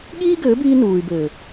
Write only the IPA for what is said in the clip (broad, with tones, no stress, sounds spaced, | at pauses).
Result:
ɠ iː˦ ɡ ɘː˨˦ b iː˧ n uː˨ y̯ b ɘː˨